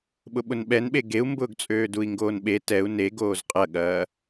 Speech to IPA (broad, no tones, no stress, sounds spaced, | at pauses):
ɓ ʊ ɓ ʊ n ɓ ɛ n ɓ e ɡ e u̯ m b ʊː ɡ t͡sʼ øː d u i̯ ŋ ɡ oː n ɓ e t ɛ u̯ n e ɡ oː z qʼ ɐ ɠ ɐː